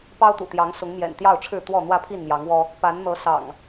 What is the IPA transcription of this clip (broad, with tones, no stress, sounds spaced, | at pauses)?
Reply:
p ɑ˦ ʊ̯ t̪ ṵ˨˩ t̪ j ɑ˨˦ ŋ s ʊ˨˦ ŋ m j ɛ̰˨˩ n t̪ j ɑ˥˨ ʊ̯ ʈ͡ʂʰ ɻ̩˥˨ t̪ w ɔ˥˨ n̪ w ä˥˨ pʰ i˥˨ n m j ɑ˨˦ ŋ w ɔ˦ | p a˨˦ n n̪ ɤ˨˦ s ɑ̰˨˩ ŋ